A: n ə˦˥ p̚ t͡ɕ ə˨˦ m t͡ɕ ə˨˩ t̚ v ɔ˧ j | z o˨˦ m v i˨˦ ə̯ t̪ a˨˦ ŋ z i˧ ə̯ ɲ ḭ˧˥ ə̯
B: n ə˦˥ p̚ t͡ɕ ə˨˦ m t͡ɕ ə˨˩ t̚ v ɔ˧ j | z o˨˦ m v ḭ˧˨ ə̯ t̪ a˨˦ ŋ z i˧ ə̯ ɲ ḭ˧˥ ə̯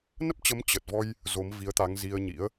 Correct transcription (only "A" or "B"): A